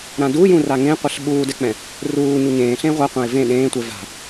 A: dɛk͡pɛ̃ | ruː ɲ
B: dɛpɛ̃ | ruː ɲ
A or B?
A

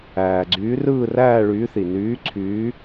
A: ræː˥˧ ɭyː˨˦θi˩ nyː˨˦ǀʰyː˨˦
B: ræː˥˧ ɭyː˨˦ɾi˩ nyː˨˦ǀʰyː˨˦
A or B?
A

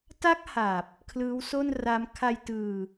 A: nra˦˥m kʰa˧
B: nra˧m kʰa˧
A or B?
A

